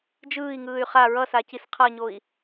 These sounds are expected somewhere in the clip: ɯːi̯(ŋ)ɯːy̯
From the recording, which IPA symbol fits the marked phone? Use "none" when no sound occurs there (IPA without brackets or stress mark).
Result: ŋ